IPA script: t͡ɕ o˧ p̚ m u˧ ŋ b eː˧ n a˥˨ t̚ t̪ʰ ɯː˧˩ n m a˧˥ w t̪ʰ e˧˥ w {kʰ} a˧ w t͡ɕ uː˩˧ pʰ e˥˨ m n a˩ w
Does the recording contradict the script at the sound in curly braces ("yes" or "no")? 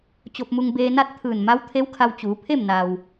no